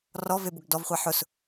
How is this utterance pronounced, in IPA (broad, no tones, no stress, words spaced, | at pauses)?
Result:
rɔ vebʊɡdɔvχʷa ħʊs